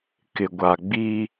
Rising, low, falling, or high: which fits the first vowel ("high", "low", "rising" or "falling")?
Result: low